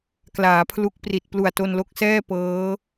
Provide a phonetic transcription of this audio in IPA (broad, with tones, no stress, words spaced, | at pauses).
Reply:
klaː˩˦pʰlu˦˥k̚pri˨˩t̚ plu˨˩a̯to˧nlo˦˥k̚sɛː˥˩ pɤː˦˥